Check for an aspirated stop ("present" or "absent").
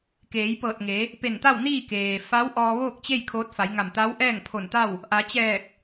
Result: present